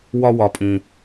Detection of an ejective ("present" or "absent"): present